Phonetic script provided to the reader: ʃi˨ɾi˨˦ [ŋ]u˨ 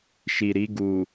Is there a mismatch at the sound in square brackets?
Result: yes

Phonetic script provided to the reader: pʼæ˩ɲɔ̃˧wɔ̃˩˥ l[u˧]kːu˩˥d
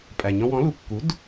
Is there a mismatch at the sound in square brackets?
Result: yes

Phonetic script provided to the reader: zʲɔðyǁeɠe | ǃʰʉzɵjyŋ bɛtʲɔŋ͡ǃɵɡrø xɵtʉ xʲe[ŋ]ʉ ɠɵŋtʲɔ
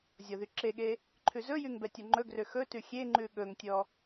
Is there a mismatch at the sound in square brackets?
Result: yes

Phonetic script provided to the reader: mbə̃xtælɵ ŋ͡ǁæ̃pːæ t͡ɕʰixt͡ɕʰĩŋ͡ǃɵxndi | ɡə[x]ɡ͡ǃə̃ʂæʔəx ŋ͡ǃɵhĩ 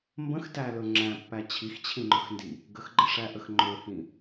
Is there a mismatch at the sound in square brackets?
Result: no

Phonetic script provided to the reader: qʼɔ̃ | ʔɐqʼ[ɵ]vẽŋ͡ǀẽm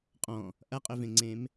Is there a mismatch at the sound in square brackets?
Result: no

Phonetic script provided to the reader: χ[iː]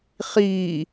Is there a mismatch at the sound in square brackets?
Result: no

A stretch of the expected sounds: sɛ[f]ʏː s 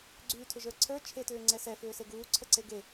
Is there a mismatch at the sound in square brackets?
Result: no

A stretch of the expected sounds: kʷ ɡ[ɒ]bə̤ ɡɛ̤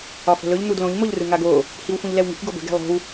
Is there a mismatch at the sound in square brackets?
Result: no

